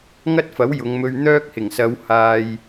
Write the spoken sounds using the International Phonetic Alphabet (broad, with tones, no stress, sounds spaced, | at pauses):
ŋ ɐ˥ t̚ f ɐ˨˥ w j ʊ˨˧ ŋ m ɵ˧ ɥ n̪ œː˥ k̚ h ɪ˨˩ ŋ s ɐ˨˧ w h aː˨ j